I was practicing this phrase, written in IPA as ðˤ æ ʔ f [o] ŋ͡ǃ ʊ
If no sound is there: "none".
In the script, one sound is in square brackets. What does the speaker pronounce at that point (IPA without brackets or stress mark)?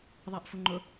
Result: u